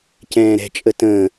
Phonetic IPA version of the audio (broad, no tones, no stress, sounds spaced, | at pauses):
c ɛ̃ː ɾ ɛ̤ t͡ʃʼ ə t ə̃ː